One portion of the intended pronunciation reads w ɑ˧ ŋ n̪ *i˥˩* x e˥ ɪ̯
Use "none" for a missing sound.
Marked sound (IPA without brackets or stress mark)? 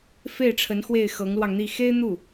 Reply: i˥˩